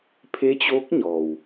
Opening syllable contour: rising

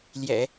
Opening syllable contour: low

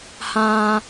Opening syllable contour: low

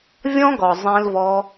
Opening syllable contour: high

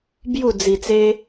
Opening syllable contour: falling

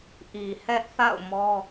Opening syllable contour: low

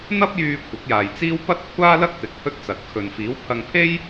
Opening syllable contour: high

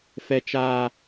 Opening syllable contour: high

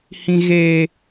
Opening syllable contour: high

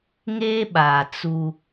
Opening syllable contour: high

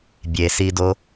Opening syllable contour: low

